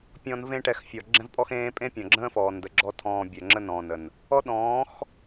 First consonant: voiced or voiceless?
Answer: voiceless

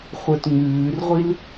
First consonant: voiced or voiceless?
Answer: voiceless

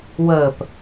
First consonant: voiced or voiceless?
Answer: voiced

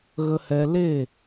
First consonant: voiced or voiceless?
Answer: voiced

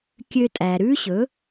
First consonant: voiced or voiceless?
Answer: voiceless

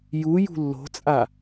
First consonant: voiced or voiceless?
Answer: voiced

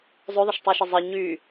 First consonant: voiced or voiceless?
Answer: voiced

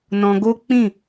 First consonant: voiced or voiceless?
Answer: voiced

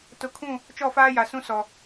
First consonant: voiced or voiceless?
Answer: voiceless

